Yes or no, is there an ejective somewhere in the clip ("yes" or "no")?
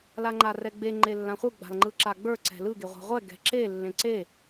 no